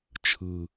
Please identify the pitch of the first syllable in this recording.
low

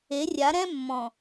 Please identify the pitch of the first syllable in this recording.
rising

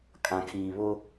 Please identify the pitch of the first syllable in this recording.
low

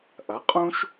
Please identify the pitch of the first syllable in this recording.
rising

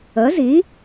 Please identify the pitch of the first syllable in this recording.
rising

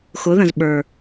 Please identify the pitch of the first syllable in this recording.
rising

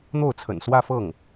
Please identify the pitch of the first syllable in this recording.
falling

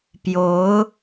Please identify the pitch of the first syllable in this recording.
rising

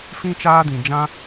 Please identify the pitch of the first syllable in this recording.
high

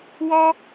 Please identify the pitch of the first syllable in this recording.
high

